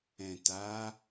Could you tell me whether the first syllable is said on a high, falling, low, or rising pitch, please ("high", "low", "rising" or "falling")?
low